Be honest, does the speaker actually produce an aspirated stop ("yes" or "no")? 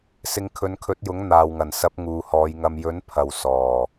yes